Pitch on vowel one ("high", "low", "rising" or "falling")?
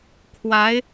rising